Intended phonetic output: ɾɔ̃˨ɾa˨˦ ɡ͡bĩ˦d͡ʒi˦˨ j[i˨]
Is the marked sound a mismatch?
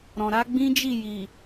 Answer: no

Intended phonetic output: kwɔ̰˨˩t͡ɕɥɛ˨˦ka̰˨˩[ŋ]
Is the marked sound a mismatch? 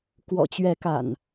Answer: yes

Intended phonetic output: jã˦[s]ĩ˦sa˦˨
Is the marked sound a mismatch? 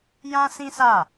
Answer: no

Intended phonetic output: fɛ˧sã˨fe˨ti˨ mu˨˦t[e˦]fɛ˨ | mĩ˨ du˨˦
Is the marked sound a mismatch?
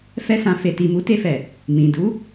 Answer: yes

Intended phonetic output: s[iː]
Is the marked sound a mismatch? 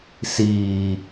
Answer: no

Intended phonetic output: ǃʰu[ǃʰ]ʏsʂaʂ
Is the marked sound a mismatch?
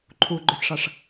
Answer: yes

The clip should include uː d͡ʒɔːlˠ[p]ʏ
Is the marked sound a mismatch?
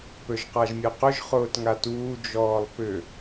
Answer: no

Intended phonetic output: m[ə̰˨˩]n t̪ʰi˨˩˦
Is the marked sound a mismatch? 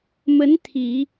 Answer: yes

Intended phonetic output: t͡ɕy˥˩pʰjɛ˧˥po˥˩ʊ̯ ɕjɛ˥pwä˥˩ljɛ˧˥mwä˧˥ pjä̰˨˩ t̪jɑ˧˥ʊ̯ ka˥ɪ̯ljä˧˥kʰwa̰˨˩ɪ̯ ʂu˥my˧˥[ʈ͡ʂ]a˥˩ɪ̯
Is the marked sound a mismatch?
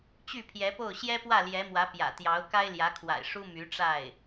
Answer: no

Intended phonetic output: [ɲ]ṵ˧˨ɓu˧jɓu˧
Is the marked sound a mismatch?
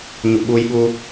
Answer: no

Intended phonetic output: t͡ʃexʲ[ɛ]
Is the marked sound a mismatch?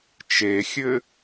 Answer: yes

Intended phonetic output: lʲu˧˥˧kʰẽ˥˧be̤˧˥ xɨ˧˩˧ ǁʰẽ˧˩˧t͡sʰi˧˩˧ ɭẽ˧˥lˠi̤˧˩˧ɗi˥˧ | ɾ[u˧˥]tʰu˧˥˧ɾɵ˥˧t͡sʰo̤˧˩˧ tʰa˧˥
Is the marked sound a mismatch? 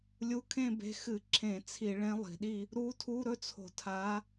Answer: no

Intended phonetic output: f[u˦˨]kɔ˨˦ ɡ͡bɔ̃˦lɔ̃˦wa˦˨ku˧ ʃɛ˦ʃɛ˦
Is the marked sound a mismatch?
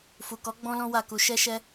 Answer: yes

